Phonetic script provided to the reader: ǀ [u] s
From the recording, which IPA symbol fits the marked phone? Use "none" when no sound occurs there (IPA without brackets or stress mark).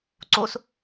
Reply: o